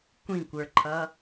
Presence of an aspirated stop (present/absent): present